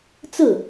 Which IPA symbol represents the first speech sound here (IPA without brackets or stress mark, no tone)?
t͡s